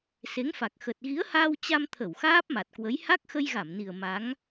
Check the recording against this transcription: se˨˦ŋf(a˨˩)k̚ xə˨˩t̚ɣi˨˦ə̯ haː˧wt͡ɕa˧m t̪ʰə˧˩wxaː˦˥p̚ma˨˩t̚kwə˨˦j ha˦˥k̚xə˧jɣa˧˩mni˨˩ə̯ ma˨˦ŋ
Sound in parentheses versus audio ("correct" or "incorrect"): correct